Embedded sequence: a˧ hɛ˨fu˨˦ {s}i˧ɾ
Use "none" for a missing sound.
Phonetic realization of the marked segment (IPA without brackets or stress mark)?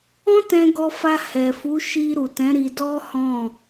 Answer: ʃ